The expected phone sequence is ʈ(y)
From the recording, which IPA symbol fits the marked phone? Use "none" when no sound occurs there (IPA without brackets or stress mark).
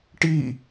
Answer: i